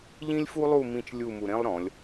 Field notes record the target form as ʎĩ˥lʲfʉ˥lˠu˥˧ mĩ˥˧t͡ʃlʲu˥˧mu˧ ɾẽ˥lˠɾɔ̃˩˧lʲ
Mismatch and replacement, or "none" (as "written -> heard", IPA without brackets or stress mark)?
ʉ˥ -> u˥